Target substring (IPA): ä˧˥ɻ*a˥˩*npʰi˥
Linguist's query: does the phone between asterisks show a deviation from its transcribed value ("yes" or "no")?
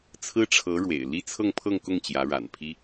yes